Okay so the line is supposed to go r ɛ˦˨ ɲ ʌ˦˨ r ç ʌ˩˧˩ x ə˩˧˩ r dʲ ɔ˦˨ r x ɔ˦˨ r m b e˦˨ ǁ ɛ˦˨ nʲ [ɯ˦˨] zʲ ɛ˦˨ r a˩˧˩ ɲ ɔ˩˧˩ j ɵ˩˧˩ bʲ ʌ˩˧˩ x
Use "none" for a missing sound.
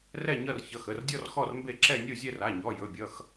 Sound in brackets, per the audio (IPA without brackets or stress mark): u˦˨